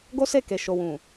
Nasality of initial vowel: oral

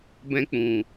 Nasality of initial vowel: nasal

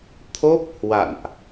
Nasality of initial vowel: oral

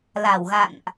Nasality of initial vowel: oral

